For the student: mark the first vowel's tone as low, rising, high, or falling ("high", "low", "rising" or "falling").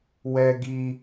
high